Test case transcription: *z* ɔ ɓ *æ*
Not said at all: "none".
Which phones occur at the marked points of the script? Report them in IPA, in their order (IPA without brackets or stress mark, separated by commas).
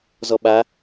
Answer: z, a